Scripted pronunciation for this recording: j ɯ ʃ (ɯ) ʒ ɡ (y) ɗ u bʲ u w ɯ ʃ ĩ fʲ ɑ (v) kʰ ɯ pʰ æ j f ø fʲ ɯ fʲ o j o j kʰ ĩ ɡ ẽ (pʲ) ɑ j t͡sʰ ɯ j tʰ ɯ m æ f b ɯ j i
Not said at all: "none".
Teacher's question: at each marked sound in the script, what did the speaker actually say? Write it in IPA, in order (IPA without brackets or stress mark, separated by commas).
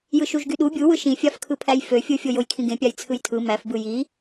u, y, f, pʲ